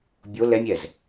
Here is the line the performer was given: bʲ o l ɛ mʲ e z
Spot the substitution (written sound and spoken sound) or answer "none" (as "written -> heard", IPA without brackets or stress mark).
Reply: e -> ɛ